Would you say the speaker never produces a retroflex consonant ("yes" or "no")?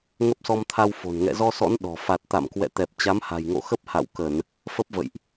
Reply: yes